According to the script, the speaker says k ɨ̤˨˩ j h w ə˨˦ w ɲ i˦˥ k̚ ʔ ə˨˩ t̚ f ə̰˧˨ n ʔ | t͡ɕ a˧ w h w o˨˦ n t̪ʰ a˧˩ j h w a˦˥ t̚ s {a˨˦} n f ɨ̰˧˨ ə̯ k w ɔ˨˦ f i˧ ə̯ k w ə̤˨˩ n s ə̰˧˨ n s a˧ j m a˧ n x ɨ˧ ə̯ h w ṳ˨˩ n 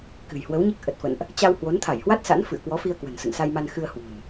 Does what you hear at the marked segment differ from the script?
yes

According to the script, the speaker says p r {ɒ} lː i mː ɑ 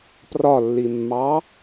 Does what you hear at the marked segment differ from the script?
no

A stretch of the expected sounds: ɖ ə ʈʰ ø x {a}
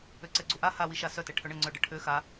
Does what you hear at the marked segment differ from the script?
no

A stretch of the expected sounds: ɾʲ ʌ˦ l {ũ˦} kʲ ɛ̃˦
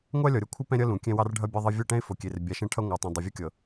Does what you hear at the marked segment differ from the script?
yes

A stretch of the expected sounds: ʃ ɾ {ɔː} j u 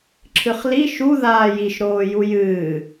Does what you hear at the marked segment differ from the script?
yes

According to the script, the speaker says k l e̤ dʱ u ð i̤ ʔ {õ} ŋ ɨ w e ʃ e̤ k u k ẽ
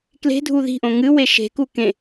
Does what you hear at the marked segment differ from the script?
no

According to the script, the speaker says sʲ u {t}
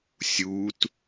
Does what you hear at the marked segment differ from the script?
no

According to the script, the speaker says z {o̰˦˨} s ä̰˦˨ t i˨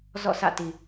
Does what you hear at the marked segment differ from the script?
yes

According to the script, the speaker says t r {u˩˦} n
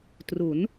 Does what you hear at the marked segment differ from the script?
no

